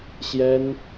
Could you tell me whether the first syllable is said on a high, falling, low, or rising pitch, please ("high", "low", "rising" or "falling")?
high